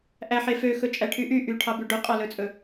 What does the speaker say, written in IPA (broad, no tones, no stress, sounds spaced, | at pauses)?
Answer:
ʔ æ ħ e f ø x ɵ t͡ʃʼ æ ʈʰ y ʔ y ʔ y ʈʰ ɑ b ʉ ɖ ɵ qʼ ɑ l ɵ t͡sʼ ɵ